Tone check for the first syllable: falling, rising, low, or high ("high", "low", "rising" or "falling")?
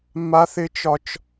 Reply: high